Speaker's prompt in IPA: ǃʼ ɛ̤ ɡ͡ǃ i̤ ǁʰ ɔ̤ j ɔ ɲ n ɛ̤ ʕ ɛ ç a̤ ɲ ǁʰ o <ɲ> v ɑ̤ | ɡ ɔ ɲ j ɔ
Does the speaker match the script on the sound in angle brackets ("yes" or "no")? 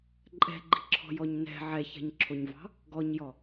yes